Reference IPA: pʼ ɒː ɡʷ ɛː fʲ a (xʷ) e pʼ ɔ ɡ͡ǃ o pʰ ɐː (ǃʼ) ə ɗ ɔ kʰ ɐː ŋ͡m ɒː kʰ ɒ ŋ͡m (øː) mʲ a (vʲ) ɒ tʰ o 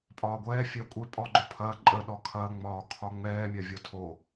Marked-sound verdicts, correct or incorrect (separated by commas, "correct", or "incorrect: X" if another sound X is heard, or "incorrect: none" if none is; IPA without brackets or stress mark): incorrect: kʷʼ, correct, incorrect: ɛː, correct